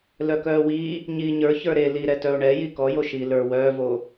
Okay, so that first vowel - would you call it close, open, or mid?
mid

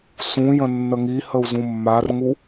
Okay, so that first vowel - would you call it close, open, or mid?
close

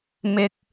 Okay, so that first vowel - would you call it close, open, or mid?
close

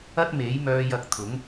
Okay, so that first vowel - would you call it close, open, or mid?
open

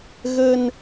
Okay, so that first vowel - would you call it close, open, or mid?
mid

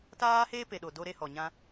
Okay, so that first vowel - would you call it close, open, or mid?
open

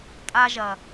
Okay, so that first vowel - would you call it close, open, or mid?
open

